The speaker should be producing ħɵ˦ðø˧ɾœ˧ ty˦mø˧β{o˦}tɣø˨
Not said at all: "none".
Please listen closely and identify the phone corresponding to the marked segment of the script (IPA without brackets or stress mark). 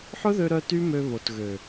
o˨